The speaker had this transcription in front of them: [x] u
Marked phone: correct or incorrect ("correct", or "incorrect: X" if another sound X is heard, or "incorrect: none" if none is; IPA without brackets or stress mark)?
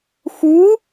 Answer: correct